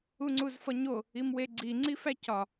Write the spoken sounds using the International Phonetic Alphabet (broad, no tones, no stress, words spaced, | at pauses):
uŋ͡ǀuzfɒɲo | imweɡ͡ǀi ŋ͡ǀifæcɒ